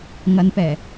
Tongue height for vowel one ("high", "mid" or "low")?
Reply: low